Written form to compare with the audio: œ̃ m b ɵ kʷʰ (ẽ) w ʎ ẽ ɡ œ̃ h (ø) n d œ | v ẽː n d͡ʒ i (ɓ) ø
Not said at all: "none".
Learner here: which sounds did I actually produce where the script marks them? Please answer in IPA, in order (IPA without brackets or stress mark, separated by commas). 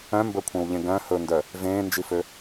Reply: ẽ, ɵ, f